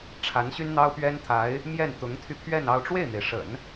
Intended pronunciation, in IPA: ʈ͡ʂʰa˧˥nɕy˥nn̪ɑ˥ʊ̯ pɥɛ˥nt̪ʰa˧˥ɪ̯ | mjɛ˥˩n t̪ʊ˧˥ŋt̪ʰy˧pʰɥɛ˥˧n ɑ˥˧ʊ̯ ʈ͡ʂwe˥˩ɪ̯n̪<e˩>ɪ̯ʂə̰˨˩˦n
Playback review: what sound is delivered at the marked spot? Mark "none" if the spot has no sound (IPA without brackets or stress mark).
e˩